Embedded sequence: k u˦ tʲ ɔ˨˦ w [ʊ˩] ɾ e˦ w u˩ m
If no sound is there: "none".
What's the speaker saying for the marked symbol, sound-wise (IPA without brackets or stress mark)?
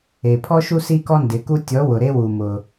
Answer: ʊ˩